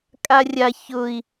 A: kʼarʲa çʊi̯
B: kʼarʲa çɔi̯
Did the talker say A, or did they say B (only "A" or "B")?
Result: A